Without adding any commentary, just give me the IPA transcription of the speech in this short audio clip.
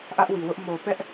ʔä˦ʔwi˨wʊ˦ʔ mo˨pɛ˦ʔ

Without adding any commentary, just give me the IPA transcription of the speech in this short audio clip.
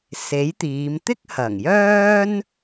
se˨˥jt̪iː˨˧m t̪ɪ˥k̚hɐ˨˩ŋjœː˥n

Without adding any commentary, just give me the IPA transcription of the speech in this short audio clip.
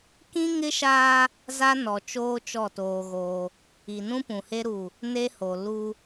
kĩ˦ŋɪ˦ʃaː˦ | za˦nɔ˨t͡ʃoː˦ t͡ʃɔ˦˨toː˦ɣoː˦ | i˨nũ˦pũ˨he˦ ɾu˦˨ | ne˦ho˨ lu˦

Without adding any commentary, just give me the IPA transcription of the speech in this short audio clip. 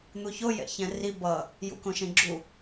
n̪uçojɛ̰çɛ̃ ri bʌ | jṵkõʃẽɡ͡ǁu

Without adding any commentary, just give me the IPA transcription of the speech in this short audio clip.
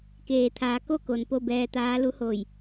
keː˩t̪ʰaː˩˧ ko˥˨ko˩n po˥˨bɛː˧t̪aː˧˥ lu˧˥hoː˧˩j

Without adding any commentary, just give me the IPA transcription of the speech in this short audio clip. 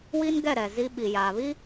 wi˦nɡɛ˦˨ ɾɛ˨zi˦ ɓi˨jaː˨ βi˦

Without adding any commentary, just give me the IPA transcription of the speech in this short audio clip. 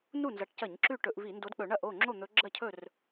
nu˥˩nzɐ˨˦ʈcɐ˧˩˧ɲ ǁʉ˥˩ʈɵ˧˩˧ʔvi˧˩˧ ndo˨˦dk͡pɵ˧˩˧ ɳɐ˥˩ʔo˥˩ ŋ͡ǁo˥˩n̪ɵ˨˦ɡ͡ǁɐ˥˩cʰɵ˥˩r

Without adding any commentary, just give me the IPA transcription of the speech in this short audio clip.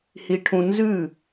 hi˧ʈʰũ˧ nzʉ˦˨

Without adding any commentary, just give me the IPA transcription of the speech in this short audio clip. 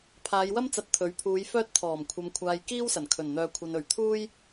pʰaː˨˧jwɐ˥mt͡sɐ˨˥t̚ t̪ʰɵ˨˥ɥpʰuː˨˧j fœː˧t̚t̪ʰɔː˨˩mkʷʰɐ˨mkʷʰaː˨j kiː˥wsɐ˨˩n kʰɵ˨˩nn̪œː˨ kʷʰɐ˨nɵ˨˩ɥt̪ʰuː˥j

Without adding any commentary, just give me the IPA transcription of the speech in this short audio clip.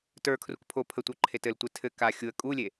tə˞kʰruk pʰo pʰətʷə˞ ǃʰetɘltʷe tʰɘ ka xʲuə̯ kʼulʲe

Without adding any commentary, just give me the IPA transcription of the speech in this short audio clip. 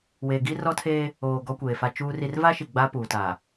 weː˨ɡi˦ rɔ˦tʰeː˦ | oː˨ ɡɔ˦kʷeː˨fa˦ t͡ʃuː˦ri˦r va˦ʃi˨ ɡ͡ba˦puː˨ta˨

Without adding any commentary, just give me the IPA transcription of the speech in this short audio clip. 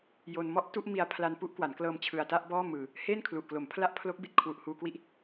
jo˧n mɔ˥˩ʔtu˥˩ʔ mi˧a̯pʰla˧n pu˦˥ʔkwa˩˦n klɤː˧mt͡ɕʰɯ˨˩a̯ta˥˩ʔ bɔː˥˩mɯː˨˩ | heː˥˩nkʰlu˨˩ʔklo˩˦m pʰla˦˥ʔpʰlo˦˥k̚ bi˨˩t̚kʰwu˨˩ʔhuː˧kwi˦˥ʔ

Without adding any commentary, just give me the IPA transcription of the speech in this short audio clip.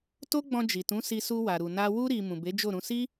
to˦ɡ͡bɔ̃˧d͡ʒi˨tũ˨˦ si˧su˧wa˨ ɾu˨na˧ wu˧ɾi˨ mũ˨be˨˦d͡ʒo˦˨ɾũ˨˦ si˦

